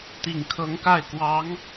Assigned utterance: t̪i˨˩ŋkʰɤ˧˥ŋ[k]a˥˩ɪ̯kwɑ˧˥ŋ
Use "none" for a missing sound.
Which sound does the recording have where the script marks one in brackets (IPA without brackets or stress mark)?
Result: k